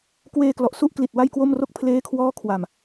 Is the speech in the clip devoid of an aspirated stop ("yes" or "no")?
no